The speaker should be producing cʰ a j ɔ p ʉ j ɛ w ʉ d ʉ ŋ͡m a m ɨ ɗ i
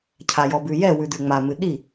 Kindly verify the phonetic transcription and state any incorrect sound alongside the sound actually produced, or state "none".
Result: p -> b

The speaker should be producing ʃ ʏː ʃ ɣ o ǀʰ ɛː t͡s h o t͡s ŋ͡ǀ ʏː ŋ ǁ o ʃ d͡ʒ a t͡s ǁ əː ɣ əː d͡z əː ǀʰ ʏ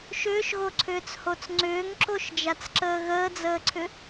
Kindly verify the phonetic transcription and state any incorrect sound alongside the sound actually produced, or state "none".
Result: ɛː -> ʏː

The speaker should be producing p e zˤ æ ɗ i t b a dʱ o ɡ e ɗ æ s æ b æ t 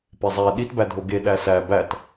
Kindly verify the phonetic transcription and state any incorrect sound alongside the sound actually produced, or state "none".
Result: a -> æ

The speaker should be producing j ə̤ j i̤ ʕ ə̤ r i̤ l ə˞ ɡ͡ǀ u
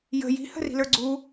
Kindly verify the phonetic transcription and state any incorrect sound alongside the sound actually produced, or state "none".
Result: ʕ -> h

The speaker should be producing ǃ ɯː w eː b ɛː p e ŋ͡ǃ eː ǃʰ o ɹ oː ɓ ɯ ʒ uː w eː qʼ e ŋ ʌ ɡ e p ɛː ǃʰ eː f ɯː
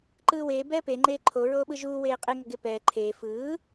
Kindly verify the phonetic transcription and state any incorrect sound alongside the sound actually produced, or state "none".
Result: none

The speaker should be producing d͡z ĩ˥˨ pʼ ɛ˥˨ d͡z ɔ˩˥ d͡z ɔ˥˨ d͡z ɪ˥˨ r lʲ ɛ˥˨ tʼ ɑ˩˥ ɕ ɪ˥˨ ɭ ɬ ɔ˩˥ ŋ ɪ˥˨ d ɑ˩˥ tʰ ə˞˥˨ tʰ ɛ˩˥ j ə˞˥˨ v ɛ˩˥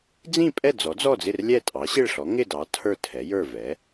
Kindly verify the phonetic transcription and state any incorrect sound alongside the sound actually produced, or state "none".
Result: none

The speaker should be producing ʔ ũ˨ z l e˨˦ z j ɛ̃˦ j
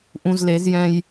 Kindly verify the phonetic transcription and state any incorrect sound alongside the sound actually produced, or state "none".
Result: none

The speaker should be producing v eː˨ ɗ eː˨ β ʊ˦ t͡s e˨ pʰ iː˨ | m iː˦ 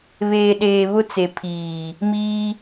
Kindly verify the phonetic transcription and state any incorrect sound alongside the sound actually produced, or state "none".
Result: v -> β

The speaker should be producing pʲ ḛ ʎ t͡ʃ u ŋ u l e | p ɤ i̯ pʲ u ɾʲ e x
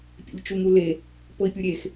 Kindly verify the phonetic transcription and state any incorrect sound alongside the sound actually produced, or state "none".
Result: none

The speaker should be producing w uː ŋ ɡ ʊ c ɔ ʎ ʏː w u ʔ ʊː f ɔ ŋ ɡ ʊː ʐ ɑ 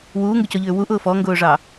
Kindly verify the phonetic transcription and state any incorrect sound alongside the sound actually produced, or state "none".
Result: none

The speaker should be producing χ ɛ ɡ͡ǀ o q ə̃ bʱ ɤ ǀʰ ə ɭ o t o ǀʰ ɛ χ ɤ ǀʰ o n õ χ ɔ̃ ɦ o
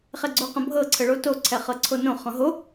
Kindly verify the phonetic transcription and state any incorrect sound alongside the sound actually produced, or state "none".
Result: none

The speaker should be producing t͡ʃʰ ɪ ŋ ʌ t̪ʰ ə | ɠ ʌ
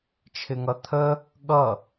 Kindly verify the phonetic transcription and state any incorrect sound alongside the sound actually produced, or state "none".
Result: none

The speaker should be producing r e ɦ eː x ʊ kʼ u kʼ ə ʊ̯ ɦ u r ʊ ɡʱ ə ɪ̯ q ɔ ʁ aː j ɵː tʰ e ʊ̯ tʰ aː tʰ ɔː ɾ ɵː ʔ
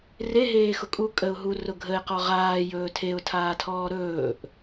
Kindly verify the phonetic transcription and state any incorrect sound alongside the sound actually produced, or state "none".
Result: none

